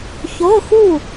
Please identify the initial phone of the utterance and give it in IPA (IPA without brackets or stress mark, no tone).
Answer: ç